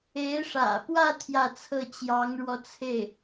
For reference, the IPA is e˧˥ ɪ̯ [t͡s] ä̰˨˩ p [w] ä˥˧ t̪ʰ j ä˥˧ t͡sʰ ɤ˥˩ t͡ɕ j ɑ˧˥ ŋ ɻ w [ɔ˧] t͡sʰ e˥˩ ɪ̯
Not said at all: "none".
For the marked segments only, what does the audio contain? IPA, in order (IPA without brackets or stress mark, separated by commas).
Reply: ʂ, w, ɔ˧